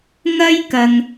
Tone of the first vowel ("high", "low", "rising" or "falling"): high